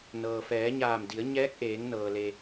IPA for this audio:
n ɤː˩ f ɛː˩˧ ɲ aː˧˩ m d i˩˧ ə̯ ɲ ɛː˧˥ k̚ ʔ eː˩˧ ŋ n ɤː˩ l e˩

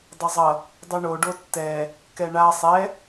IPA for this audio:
dˤ ʌ zˤ ʌ | dˤ u ɳ o ɖ o tː ɛ | k ɛ ɳ a sˤ ɛ

